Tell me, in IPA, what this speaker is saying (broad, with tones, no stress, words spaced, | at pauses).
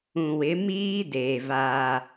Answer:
ũ˨wɪ˨˦miː˦deː˨ vaː˦